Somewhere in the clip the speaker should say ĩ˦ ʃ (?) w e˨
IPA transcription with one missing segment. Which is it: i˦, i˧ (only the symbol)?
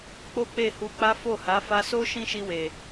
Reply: i˧